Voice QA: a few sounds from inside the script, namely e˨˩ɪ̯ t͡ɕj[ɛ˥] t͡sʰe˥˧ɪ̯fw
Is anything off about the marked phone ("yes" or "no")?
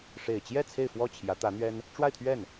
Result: yes